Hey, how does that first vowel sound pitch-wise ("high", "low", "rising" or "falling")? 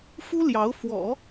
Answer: high